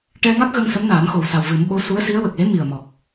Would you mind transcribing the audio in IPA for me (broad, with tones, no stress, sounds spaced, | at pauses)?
ʈ ɛ˧ ŋ a˦˥ k̚ ɣ ə˧ ŋ s ə˧˥ m n aː˨˩˦ n x o˨˩ w s a˨˩ w v ɨ˨˩˦ m ɓ o˧˥ s u˧˥ ə̯ s i˧˥ ə̯ w ə˨˩ k̚ l e˧˥ m i˨˩ ə̯ m ɔ˨˩ k̚